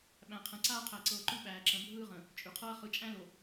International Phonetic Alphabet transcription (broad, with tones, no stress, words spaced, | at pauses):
ɓæ̃˨qʰə̃˨ǀaː˦ qʰæ˨ǀɤː˨ǃʉ˦ ɓæː˨ǁə̃˨bʱɯː˦ʁə̃˨ | t͡ʃʼʉ˨qʰɤ˦ɐ̯ χɯ˨t͡ʃʼæ̃˦lo˨